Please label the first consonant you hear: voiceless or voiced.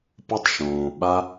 voiceless